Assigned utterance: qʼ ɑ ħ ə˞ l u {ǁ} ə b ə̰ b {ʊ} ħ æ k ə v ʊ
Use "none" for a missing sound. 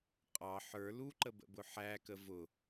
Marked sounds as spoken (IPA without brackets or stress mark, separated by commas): ǃ, ʊ